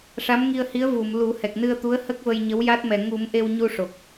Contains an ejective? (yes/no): no